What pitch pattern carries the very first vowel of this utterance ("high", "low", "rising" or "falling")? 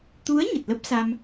rising